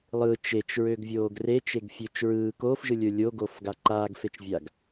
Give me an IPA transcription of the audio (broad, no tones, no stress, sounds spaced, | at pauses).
lˠ ɯ t͡ʃ e t͡ʃ ɹ ø ɡ vʲ oː ɡ r e t͡ʃ e ɡ fʲ ø t͡ʃ ɹ ɯː k oː f ʒ ɯ lʲ ə˞ lʲ o ɡ oː f ɡ a ǃ aː ɡ f e t͡ʃ vʲ a ɡ